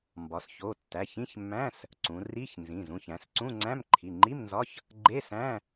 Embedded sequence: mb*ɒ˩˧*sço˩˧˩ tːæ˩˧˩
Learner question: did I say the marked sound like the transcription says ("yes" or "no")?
yes